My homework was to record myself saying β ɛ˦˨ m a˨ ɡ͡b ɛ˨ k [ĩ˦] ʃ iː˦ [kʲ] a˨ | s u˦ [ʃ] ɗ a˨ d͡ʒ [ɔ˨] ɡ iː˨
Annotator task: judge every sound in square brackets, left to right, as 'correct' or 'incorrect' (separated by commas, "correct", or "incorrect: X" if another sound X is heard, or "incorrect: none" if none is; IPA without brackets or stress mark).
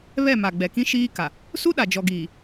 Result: correct, incorrect: k, incorrect: none, correct